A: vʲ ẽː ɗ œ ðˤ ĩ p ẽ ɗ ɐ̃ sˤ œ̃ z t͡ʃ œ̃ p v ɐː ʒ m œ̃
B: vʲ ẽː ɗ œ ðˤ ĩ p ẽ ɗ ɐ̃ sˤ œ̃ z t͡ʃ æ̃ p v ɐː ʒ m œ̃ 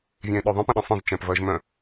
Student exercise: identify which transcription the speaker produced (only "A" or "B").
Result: B